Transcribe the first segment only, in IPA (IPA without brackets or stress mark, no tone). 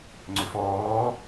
ŋ͡ǀ